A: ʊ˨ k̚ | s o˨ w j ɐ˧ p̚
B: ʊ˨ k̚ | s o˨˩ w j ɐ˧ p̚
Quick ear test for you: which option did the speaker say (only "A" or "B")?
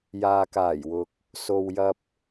A